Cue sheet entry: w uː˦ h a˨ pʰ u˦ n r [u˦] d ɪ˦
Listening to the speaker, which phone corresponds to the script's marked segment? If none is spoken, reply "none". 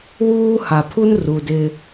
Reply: u˨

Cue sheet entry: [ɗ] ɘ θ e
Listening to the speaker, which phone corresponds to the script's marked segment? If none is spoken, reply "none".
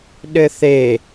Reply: ɗ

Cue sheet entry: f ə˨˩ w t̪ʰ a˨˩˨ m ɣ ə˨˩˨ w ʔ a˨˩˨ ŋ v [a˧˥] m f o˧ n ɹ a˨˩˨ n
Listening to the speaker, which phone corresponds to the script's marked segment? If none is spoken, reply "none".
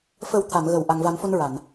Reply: a˨˩˦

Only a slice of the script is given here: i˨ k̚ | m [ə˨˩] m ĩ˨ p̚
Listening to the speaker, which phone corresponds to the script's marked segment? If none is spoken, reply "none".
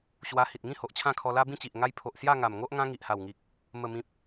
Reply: ə˨˩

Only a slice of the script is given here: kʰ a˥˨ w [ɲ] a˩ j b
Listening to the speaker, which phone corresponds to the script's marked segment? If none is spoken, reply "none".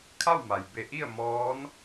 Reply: m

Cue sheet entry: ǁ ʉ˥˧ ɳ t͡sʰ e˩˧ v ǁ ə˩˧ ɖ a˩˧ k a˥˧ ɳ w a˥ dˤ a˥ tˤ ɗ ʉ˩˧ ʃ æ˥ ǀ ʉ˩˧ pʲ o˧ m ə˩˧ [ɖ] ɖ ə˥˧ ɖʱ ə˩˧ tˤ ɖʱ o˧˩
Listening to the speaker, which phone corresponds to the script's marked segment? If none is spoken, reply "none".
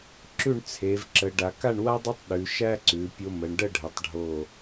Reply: ɳ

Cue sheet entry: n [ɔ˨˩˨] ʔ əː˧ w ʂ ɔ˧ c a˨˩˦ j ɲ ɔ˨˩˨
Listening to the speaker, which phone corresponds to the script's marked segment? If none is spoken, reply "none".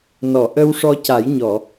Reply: ɔ˨˩˨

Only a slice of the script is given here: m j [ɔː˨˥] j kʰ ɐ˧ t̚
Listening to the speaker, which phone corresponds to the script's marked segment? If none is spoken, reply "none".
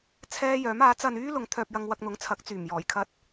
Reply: ɔː˨˩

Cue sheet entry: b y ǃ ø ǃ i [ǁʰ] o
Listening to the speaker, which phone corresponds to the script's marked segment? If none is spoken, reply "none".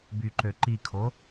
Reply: kʰ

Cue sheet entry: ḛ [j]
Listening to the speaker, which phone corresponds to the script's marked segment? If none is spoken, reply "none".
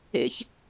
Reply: ç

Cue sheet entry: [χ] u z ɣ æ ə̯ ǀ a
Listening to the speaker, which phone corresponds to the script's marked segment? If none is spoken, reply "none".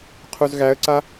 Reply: qʰ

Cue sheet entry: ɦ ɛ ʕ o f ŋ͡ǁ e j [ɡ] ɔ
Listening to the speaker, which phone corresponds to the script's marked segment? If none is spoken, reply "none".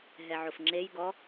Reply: ɡ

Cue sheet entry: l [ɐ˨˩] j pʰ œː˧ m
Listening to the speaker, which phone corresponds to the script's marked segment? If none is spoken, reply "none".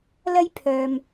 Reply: ɐ˥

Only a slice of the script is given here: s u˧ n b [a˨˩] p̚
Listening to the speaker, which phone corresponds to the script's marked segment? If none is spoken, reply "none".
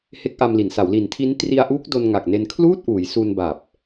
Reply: a˨˩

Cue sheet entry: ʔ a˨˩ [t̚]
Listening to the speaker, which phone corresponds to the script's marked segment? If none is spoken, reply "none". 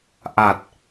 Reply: t̚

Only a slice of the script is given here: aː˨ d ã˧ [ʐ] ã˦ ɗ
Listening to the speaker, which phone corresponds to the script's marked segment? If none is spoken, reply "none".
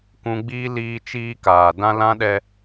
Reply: l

